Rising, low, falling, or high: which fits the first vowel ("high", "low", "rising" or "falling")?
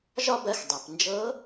high